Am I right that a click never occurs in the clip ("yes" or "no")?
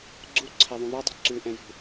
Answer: no